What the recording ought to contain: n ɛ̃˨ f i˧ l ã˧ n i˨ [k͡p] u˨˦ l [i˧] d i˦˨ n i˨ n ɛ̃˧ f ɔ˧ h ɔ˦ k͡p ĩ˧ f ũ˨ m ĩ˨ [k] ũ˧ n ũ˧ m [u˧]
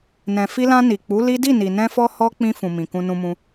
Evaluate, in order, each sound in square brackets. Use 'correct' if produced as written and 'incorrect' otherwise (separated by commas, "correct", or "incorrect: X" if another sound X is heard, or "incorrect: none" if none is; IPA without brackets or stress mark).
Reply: correct, incorrect: i˦, correct, incorrect: ũ˧